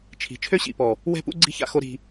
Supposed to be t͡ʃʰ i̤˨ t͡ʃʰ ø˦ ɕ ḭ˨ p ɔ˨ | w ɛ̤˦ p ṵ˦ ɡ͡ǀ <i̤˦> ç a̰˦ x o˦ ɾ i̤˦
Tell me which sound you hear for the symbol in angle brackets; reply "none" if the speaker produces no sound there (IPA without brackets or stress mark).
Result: i̤˦